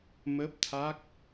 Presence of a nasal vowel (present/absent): absent